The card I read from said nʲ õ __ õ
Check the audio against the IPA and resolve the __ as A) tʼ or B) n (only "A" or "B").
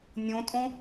A